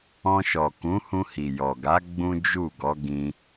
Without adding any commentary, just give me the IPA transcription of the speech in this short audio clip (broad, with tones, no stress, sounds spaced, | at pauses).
ɔ̃˧ ʃ ɔ˨ k ũ˨˦ h ũ˧ h i˨ j ɔ˨ ɡ a˨˦ ɡ͡b ũ˦ d͡ʒ u˦˨ ɡ ɔ˨˦ ɡ ĩ˧